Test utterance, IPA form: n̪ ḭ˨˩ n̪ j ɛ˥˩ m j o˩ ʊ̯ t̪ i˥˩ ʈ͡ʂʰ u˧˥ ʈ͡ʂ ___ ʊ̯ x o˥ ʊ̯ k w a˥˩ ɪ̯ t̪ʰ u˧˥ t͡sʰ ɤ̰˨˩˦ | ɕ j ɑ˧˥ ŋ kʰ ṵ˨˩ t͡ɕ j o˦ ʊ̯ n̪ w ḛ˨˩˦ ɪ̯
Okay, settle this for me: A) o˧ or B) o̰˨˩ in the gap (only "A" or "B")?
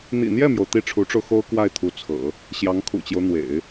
A